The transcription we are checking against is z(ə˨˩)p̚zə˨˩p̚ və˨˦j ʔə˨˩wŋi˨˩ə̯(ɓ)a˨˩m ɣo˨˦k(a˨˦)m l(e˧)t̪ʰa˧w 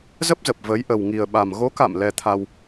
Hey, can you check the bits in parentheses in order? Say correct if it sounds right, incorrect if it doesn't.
incorrect: ə˦˥, correct, incorrect: a̰˧˨, incorrect: ɛ˧

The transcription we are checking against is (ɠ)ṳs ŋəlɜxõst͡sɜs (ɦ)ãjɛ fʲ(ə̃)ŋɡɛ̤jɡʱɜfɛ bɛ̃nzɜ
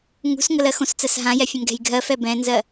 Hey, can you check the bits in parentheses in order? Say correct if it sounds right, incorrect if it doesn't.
incorrect: ŋ, correct, correct

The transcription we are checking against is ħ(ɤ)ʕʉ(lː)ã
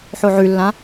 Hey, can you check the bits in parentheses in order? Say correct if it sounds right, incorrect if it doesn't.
incorrect: o, correct

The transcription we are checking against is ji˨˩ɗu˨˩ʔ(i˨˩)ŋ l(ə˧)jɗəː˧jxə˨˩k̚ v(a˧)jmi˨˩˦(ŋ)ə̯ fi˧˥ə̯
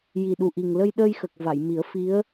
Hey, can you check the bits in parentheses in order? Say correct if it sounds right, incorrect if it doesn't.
correct, correct, incorrect: a˨˩˨, incorrect: none

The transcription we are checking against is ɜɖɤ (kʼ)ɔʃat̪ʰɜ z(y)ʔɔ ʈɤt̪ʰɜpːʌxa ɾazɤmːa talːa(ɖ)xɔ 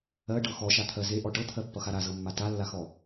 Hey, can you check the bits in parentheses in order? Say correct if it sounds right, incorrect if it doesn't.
incorrect: x, incorrect: e, incorrect: none

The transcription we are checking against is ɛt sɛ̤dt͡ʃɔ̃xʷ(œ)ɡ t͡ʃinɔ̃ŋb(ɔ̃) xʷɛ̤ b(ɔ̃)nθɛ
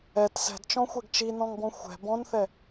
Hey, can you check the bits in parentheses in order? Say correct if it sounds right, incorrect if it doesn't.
incorrect: ɛ, correct, correct

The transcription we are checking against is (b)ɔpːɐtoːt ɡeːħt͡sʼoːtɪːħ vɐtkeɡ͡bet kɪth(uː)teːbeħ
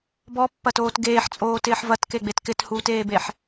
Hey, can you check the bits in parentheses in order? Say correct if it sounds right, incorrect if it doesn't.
correct, correct

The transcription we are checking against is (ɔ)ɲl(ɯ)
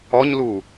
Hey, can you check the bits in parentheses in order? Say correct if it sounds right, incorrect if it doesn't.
correct, incorrect: u

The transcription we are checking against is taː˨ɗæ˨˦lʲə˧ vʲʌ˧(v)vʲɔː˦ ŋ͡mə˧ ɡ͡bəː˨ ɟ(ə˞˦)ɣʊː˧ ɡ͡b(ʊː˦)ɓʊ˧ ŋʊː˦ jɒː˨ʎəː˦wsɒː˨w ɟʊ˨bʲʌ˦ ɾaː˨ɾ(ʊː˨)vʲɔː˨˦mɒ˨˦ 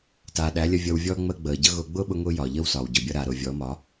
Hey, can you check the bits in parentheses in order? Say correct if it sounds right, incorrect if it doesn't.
incorrect: w, incorrect: ʌ˦, correct, correct

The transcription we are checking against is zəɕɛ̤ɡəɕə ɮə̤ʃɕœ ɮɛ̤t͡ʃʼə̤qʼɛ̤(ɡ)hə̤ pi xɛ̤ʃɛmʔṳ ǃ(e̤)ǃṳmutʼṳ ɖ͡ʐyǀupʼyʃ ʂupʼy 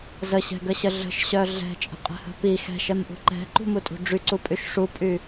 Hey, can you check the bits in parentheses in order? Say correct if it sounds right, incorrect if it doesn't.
incorrect: none, incorrect: ɛ̤

